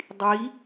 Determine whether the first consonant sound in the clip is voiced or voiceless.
voiced